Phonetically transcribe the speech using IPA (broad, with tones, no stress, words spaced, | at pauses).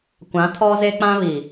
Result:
kʷã˨˦tʰɔ˦ze˦k͡pã˦ βi˨